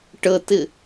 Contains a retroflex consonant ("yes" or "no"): yes